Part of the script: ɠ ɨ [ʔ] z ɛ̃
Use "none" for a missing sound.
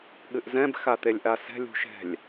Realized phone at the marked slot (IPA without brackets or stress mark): ʔ